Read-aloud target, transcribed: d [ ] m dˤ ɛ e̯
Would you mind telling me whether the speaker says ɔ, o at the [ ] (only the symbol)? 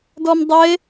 ɔ